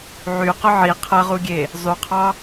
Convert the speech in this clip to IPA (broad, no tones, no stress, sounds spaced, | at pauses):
ʕ y q ʊ ʕ i qʰ ɐ ʁ u ɡʲ e | zˤ y qʰ ɑ